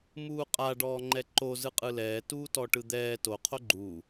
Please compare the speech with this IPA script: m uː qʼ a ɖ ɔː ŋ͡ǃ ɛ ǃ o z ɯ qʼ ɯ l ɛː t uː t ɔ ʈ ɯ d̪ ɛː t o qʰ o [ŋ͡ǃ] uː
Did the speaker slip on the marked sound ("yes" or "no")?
yes